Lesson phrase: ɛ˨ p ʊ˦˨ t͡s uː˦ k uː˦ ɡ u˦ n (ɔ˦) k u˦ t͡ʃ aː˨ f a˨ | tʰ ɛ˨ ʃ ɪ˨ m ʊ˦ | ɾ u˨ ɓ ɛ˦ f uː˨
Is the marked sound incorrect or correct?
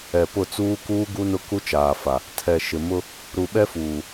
incorrect